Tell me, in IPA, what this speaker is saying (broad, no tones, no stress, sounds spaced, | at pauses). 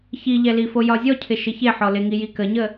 ç i ʎ ɛ l i f o j ɒ zʲ ɔ cʰ ɪ ʃ ɪ ç e ħ ɔ l ɪ ŋ i j i k ə ɲ ə